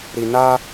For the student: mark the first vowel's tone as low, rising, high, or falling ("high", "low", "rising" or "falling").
low